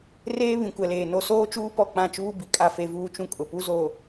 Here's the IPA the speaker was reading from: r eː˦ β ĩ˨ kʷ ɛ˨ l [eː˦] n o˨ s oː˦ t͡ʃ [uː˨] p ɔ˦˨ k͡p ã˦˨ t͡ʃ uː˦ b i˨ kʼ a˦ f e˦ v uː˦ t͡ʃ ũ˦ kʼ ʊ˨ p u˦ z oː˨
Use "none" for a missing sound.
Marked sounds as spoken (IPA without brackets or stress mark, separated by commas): eː˨, uː˦